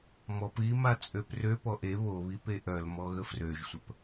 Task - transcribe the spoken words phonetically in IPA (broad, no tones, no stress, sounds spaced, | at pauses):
m ɔ p ɣ i m a t͡sʼ ø p r ø p ɔ ʔ e β o β i p e ʔ œ l m ɔ ɣ ə f r ø ʒ sʷ ə p